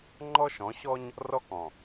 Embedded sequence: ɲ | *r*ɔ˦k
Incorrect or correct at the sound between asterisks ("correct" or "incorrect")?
correct